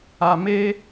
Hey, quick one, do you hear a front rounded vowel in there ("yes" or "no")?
no